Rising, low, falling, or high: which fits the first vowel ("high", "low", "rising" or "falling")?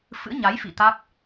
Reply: rising